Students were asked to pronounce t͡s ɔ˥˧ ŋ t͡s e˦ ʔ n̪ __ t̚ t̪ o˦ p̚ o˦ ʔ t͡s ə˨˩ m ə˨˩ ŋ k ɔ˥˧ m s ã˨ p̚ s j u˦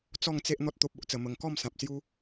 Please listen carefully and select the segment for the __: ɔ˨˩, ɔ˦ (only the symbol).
ɔ˦